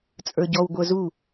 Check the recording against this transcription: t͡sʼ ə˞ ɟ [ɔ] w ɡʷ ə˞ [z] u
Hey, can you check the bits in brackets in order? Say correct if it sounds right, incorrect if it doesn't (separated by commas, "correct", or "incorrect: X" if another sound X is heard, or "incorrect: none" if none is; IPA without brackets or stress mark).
correct, correct